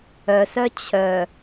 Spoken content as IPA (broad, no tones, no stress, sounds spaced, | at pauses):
œ s œ t͡ɕʰ œ